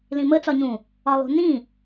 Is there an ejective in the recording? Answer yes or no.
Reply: no